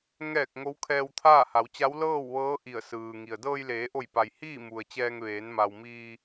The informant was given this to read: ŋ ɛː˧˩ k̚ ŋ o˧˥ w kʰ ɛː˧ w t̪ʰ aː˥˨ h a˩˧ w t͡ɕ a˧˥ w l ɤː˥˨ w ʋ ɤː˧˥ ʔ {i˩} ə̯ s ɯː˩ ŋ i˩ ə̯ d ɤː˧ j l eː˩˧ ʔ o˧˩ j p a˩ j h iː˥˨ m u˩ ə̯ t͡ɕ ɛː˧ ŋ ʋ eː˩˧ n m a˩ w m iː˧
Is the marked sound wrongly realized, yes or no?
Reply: yes